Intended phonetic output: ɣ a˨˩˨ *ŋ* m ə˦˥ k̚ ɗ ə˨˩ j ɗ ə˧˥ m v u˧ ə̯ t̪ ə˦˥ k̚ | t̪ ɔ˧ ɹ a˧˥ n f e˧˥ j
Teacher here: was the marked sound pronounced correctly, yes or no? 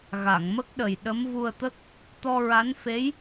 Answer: yes